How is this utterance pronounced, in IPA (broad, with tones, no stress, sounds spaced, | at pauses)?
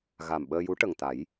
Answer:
ɣ a˨˩ m ɓ əː˧ j u˧˥ ʈ ə˨˩ ŋ t̪ a˨˩˦ j